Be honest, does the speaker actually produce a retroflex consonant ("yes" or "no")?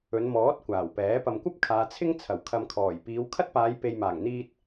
no